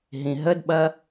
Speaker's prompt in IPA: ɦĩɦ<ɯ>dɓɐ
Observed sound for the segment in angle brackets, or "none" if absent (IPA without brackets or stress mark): ə